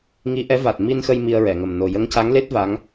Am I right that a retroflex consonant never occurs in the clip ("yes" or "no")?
yes